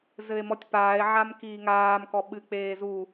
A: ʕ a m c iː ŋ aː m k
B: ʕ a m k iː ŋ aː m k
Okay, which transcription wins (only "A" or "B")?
B